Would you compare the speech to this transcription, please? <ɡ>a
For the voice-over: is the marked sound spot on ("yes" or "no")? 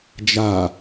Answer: no